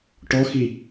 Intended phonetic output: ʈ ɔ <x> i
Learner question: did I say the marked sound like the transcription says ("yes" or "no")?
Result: yes